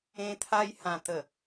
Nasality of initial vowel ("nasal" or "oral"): nasal